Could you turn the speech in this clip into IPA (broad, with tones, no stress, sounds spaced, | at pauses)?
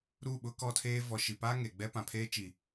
ɾ u˦˨ ɓ ʊ˦ k ɔ˦ tʰ eː˦ v ɔ˨ ʃ i˨ p aː˦ ŋ e˨ ɡ͡b ɛ˦ p ã˨ pʰ eː˦ t͡ʃ i˨